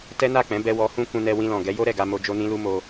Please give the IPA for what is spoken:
t ɛ˦ n a˦˨ k͡p ɛ̃˨˦ b ɛ˧ w ɔ˧ h ũ˦ k ũ˧ n ɛ˧ w ĩ˧ l ɔ̃˨ ɡ ɛ˨˦ j o˦ ɾ ɛ˦˨ ɡ a˧ m o˧ d͡ʒ o˦ n ĩ˦ l u˦ m o˧

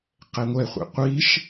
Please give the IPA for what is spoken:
q ɛ ŋʷ ɛ χʷ ḭ qʷ i ʃ

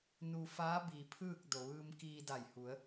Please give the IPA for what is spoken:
n u˧ f aː˧˥ b iː˩ pʰ ɯː˥˨ k̚ d o˩ ʋ ɯː˧ m k iː˧ d a˧˩ j h u˩˧ ə̯

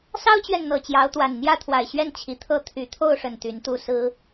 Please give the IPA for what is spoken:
s ɑ˦ ʊ̯ t͡ɕ ɥ ɛ˨ n n̪ ɤ˨˩ t͡ɕ j ɑ˨˦ ʊ̯ t̪ w a˨˩ n n̪ j ä˥˨ t̪ʰ w a˨˩ ɪ̯ ɕ ɥ ɛ˥˨ n t͡ɕʰ i˨˩ t̪ʰ ɤ˥˨ t̪ʰ y˨˩ t̪ʰ o˥˨ ʊ̯ ʂ ə˨˩ n t̪ y˨˦ n t̪ u˥˨ s ɹ̩˦

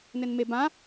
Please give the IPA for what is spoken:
n ɘ n m e b ã

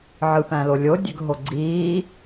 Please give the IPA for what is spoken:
ʕ ɯ p æ̃ l o lʲ o dʲ ø ɡ ɦ o ɡ͡ǀ iː

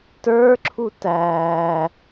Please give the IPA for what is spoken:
t ə˞ ǁʰ u t æː

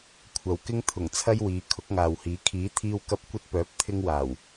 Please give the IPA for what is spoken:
kʷʰ ɐ˨ w k ɪ˧ ŋ t̪ʰ ʊ˨˩ ŋ t͡sʰ ɐ˧ j w iː˨˧ kʰ ʊ˨˥ k̚ ŋ aː˨ w h iː˨˥ kʰ iː˨˥ t̪ʰ iː˧ w k ɐ˧ p̚ kʷ ɐ˧ t̚ p œː˨˥ p̚ t̪ʰ ɪ˧ ŋ w aː˨˩ w

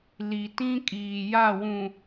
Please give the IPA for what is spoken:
l i˨ t ĩ˦ kʼ iː˨ j a˦˨ w ũ˨

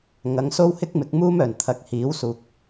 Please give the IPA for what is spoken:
ŋ ɐ˨˧ ŋ s o˥ w h ɪ˥ k̚ m ɪ˨˥ k̚ m uː˥ m œː˨˩ n t̪ʰ ɐ˨ k̚ h iː˨˥ w s uː˨ k̚

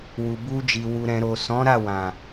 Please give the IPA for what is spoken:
w u˨ b u˧ d͡ʒ i˨ w u˨ ɾ ɛ̃˨ ɾ o˨ s ɔ̃˨˦ ɾ a˦˨ w ã˨

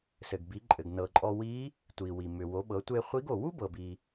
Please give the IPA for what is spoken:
s ɘ˩ ɡ b i˩˧ ǃʼ ɘ˩ ɡ n ɤ˩ ǃʼ ɔ˧ w i˧˥ | tʷ i˩ w i˩ m ʏ˩ w o˩˧ ɓ ɤ˩˧ tʷ e˧ χʷ i˧˥ ɡ o˩ w u˥ b ɤ˩ b i˩

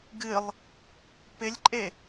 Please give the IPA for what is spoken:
ɡ ɨ lˠ | p ɪ lʲ ǃʼ e

